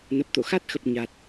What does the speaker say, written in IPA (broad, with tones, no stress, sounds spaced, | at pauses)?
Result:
n ə˨˩ p̚ t̪ o̰˧˨ x a˦˥ t̚ x ə˨˩ p̚ ɲ a˨˩ t̚